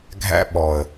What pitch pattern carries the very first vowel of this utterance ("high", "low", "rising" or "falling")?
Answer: high